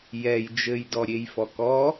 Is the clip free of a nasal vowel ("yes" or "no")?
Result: yes